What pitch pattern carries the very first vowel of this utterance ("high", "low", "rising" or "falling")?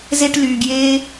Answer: high